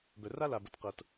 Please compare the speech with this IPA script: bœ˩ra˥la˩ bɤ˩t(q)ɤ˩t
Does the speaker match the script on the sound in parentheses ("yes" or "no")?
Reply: yes